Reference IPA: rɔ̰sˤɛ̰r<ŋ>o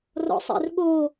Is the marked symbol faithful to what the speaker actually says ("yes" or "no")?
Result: no